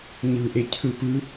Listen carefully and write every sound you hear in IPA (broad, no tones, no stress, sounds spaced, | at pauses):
ɲ ɯ ʔ e cʰ ɯ p ɯ